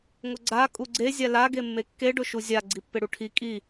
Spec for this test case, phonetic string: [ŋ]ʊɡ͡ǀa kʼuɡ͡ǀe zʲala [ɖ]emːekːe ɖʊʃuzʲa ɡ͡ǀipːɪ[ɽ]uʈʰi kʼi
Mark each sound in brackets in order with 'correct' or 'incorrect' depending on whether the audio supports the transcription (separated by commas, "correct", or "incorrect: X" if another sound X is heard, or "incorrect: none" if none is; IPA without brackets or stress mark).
correct, incorrect: ɡ, correct